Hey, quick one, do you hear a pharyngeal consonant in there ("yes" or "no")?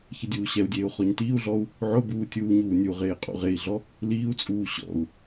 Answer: yes